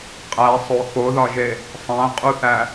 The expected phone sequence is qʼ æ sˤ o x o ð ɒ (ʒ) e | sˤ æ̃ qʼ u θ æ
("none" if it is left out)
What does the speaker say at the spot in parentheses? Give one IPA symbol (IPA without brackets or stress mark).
ʒ